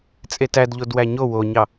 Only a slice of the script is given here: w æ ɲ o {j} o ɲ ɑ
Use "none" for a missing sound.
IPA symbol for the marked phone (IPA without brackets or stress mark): w